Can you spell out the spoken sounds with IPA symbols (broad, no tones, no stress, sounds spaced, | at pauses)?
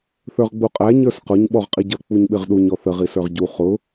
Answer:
θ ə˞ ʁ ɡ͡b u qʼ æ ɲ ə˞ s q ʊ ɲ ɓ ɔ ʁ qʼ i ɟ ʌ k͡p u ɲ ɓ ɪ ʁ ɗ u ɲ ɔ θ ə ʁ i s ə˞ ʁ ɟ u χ ʊ